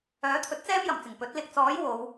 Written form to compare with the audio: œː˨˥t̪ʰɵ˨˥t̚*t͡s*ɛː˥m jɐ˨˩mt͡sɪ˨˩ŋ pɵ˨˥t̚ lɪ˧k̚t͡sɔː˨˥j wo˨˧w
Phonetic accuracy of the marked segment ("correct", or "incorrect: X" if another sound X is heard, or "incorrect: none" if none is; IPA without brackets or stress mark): correct